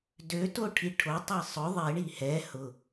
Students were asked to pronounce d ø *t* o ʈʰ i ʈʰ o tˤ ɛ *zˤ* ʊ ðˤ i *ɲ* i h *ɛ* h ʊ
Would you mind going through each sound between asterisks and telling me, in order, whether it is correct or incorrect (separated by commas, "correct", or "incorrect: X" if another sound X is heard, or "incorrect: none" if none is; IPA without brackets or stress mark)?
correct, incorrect: sˤ, incorrect: ɳ, correct